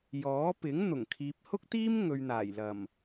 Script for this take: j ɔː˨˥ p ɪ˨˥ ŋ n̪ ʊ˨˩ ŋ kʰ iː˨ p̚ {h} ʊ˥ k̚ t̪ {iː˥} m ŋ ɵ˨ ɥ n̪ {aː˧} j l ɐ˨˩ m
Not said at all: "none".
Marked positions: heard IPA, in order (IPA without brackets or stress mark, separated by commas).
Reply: h, iː˥, aː˨˩